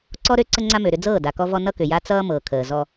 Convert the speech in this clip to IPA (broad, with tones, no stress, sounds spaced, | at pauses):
ǀ ɔ˦ ɾ ø˦ ǀ ə˦ ŋ͡ǀ a˦ m ø˨ ɾ ʏ˦ d͡z ɤː˦˨ d a˨ k ɔ˦ v ɔ˦ n ʌ˦ k ʏ˨ j a˦ t͡s ʌː˦ m ɤː˨ kʰ əː˨ z ɔ˦